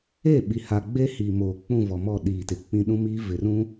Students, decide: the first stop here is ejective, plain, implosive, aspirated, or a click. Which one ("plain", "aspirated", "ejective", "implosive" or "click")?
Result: implosive